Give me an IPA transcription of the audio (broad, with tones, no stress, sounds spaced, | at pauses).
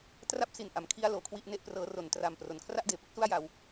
t r a˥˩ p̚ s i˨˩ n ʔ a˩˦ m kʰ i˧ a̯ l oː˩˦ kʰ w i˥˩ ʔ n e˥˩ ʔ p r ɤː˦˥ r o˩˦ n t r a˨˩ m p r o˩˦ n kʰ r a˥˩ ʔ d eː˩˦ p ɯ˥˩ k̚ s u˥˩ a̯ j a˧ w